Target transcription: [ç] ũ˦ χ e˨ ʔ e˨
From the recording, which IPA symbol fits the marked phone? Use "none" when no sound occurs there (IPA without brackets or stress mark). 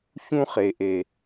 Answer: ç